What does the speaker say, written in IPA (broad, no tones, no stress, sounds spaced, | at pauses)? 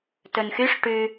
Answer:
t ɵ n x y ʂ ʈ ʉ